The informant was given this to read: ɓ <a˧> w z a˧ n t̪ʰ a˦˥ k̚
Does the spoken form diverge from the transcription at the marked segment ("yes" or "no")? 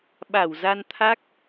yes